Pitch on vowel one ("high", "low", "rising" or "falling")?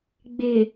low